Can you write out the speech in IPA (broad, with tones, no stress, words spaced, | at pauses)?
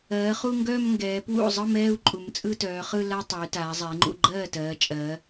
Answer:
ɜː˩˧ χu˥˧ŋɡœː˥˧m ŋɡɛː˩˧pwṵ˥˩zˤɯ˥˧mɛː˥˧u̯ ǃʼu˩˧mt͡sʼɯ˥˧tœː˩˧χɯ˥˧ la˥˧tˤœ˩˧y̯taː˩˧ zˤɛ˩˧i̯ŋ͡ǃṵ˥˩ ɡ͡ǃɜː˥˩tɜː˩˧ t͡ʃʼɜ˩˧